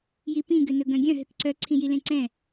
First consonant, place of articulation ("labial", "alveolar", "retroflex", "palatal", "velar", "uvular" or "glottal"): palatal